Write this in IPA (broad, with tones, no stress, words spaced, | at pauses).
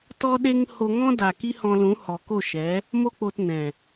tɔ˦ɗe˦ŋ ho˧ŋɔ̃˦ da˨ ki˦hɔ̃˧lũ˨˦ hɔ˨ko˦˨ʃɛ˨˦ | mo˦k͡po˧tnɛ̃˨